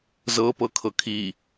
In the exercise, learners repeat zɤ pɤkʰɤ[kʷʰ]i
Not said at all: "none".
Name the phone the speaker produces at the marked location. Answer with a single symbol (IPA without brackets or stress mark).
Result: kʰ